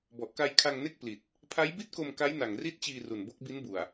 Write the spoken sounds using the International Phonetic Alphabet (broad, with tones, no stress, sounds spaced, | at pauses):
b ɔ˨˩ ʔ k a˧ j kʰ a˧ ŋ n e˥˩ k̚ p l i˨˩ t̚ | pʰ a˦˥ j b i˥˩ t̚ k o˧ m k a˦˥ j n a˨˩ ŋ r i˦˥ t̚ t͡ɕ iː˧ r u˨˩ n b o˦˥ k̚ b i˦˥ n b u˨˩ a̯